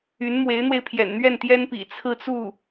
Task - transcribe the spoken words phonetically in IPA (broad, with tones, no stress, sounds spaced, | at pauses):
y˧˥ n m w e˧˥ ɪ̯ n̪ w e˧ ɪ̯ pʰ j ɛ̰˨˩ n n̪ ɥ ɛ˥˩ n t̪ j ɛ˥ n p ḭ˨˩ t͡sʰ ɹ̩˥˧ t͡s u˥˩